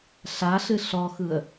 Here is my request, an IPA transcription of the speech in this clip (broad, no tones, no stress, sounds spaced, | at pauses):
ɬ a ɬ ɨ ɬ ɔ x ɯ ə̯